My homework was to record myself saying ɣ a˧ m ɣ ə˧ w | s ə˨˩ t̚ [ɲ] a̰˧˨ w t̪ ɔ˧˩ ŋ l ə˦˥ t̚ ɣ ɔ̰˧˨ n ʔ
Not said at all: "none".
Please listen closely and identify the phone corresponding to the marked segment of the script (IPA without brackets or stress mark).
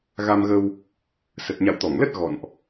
ɲ